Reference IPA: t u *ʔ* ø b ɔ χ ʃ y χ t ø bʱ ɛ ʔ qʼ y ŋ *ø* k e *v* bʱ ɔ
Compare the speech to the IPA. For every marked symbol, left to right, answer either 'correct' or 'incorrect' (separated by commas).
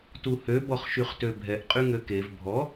incorrect, correct, correct